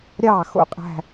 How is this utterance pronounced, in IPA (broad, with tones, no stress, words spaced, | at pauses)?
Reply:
ɾʲɑ˦˨xo̰˦qʼæ̤˦